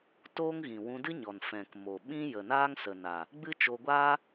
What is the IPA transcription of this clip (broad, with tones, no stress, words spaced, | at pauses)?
toː˦ŋɣĩ˨ wũ˧dɨ˦ɲɔ˨n fɛ̃˨kmo˨ɓĩ˦ jə˨naː˦ŋsə˨ na˨ | ɡ͡bɨ˦t͡ʃo˧ɡʷaː˦